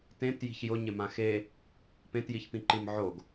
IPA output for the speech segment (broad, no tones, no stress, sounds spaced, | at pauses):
t ẽ t j i̤ ç j ʊ ɲ ɪ m ã x e | p ẽ t j i ç p ĩ ǃ i m ʕ o ɡ